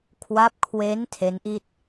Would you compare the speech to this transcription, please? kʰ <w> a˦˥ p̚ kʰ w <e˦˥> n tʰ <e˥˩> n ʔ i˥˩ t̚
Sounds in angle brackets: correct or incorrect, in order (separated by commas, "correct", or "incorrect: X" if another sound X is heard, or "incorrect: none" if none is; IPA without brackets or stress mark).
correct, correct, incorrect: e˦˥